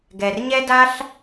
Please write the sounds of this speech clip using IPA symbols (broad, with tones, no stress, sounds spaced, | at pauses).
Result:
ɡ ɛ˩ r ɲ ɛ˥ d a˥ ɬ